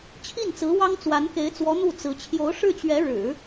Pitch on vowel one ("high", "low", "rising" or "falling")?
falling